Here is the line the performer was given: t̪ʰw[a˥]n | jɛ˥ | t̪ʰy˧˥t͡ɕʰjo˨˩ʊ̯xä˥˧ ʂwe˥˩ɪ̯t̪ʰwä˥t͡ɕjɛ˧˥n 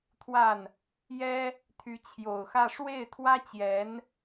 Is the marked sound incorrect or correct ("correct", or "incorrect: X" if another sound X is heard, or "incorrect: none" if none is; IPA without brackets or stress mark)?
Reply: incorrect: a˥˩